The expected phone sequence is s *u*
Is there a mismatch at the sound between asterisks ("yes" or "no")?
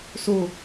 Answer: yes